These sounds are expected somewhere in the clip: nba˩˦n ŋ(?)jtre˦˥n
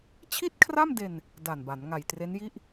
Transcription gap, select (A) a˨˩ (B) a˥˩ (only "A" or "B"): A